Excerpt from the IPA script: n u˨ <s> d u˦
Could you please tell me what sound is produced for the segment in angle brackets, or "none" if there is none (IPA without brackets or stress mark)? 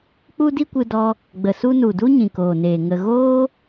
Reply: none